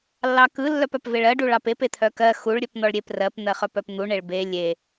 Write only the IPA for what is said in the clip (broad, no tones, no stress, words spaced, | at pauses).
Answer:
lːɑkɯ lːœpœpveɭɜ ɖuɭɑpep et̪ʰœkɜ xuɭ ɾʲœpn̪ɔɭɾʲep rɜp n̪ɜχœpœpn̪u ɳeɭbe lʲe